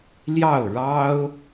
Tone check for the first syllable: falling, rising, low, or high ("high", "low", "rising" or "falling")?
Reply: falling